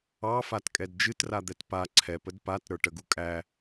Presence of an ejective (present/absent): present